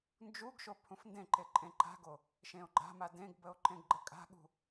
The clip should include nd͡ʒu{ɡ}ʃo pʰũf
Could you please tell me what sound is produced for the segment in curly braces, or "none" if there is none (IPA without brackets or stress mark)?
ɡ